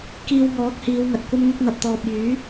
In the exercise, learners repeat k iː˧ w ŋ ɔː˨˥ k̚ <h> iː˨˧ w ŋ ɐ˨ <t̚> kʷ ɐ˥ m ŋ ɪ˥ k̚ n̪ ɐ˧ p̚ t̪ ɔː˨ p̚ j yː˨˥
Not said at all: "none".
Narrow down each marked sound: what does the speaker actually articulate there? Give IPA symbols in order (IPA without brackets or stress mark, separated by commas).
h, t̚